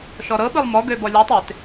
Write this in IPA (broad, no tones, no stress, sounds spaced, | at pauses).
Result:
ʃ ɔ ɾ ɤ ɓ ɯ lˠ m ɔ ɡ ø b ɔ lʲ ɔ tˤ e t